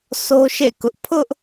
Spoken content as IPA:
sʰo˦ʃḛ˦˨kʊ˦ʔ pʰʊ˦ʔ

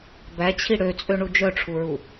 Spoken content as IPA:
bæt͡ɕʰi ɽøt͡sʼøɳu d͡ʒœʈ͡ʂʰuɹu

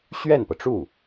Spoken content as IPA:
ɕɥɛ˥˩npɤ˩ʈ͡ʂu˥˩

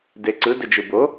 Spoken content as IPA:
deǀɯ dɘd͡ʒɯbo

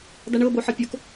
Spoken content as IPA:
daɳɤ boħɤpʲok

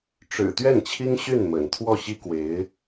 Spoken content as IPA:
ʈ͡ʂɻ̩˨˩ t̪ɥɛ˥˩nt͡ɕʰi˥ŋ ɕy˥˩nmə̰˨˩n t̪ʰwɔ˥˩ɕi˥ kwe˧˥ɪ̯

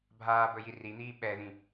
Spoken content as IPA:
bʱaːbɵ jirin̪iː ɓɛðĩ

